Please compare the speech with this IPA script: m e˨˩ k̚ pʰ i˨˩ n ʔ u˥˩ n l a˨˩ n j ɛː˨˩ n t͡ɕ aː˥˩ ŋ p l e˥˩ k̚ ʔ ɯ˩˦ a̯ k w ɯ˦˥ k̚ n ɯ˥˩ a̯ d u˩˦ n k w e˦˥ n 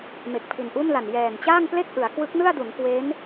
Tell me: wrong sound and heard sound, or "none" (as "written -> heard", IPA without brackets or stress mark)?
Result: none